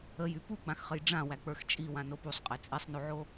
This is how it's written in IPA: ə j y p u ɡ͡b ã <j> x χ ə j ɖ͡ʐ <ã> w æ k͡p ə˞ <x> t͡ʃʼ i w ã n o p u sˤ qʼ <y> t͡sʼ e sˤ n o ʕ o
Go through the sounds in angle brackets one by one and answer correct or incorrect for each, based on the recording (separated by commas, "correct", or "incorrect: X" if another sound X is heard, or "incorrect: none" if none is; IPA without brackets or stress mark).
incorrect: none, correct, correct, incorrect: e